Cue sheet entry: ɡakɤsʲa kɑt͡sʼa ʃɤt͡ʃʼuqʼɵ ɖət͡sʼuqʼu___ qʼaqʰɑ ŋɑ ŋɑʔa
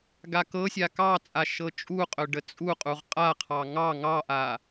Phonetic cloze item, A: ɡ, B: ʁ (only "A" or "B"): B